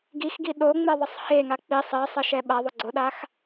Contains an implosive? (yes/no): yes